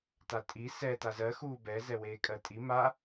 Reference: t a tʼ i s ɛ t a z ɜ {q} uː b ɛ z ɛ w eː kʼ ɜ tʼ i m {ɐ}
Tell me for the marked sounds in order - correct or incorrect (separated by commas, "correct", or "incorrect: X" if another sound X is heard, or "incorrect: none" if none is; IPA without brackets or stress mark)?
incorrect: x, incorrect: a